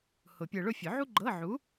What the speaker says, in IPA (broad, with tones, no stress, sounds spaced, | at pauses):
h ʊ˨˩˦ pʲ ɤ˧ ɭ ʊ˥˧ fʲ ʊ˨˩˦ ʕ u˥ ɡ͡ǃ ɤ˧˥˧ ʕ u˨˥